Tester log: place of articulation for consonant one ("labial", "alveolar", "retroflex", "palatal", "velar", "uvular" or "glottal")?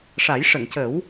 retroflex